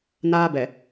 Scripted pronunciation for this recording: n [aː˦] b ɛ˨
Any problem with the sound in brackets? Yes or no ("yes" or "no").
no